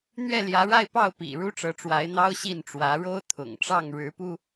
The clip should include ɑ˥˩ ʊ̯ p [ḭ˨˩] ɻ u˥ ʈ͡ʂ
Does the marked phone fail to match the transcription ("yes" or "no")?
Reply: no